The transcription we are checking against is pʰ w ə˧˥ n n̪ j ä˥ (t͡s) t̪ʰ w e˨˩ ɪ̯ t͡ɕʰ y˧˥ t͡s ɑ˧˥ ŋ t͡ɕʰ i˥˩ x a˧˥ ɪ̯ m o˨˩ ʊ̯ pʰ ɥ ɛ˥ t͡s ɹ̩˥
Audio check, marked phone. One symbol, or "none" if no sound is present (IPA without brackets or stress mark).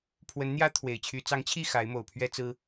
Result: none